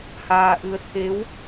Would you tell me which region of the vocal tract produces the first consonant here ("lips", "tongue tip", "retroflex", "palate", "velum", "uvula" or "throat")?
throat